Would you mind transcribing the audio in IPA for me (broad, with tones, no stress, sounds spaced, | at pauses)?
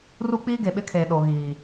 r u˦ k͡p iː˦ ɡ e˨ ɓ ɪ˦ kʰ eː˨ ɗ o˨ ɣ iː˨